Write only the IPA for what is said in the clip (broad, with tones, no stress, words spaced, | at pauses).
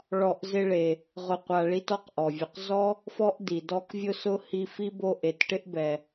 ɭɔ˨ʔ zɪ˦ɭe˨ | ʁʊ˨ qʷa˨ɭi˦t ɔ˦qʔɔ˩vʲʊ˨q zɔ˥ | fɔ˥ʔ di˩dɔ˦k vʲʊ˦sʊ˦ hi˦ fi˥bo˦ ʔe˨tʈɪ˥ʔbɛ˨